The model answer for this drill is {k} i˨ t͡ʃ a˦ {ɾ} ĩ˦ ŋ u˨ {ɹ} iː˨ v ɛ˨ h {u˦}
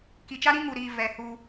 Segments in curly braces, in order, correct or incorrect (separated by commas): correct, correct, incorrect, correct